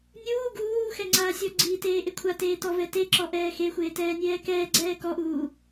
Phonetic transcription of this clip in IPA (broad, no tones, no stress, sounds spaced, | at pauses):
nʲ uː ɡ uː x ɛ ŋ͡ǀ aː sʲ ɔ ɡ͡ǀ iː t eː ʔ e kʷʰ a t eː t ɔ v ɛ t e ǁ ɔ ʔ ɛː x e xʷ eː t ɛː nʲ ɛː k ɛː ɡ͡ǀ ɛː k ɔ ʔ uː